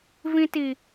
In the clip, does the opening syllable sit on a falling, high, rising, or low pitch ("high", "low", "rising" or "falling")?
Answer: high